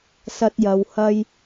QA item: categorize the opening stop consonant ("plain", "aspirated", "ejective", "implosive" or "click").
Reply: plain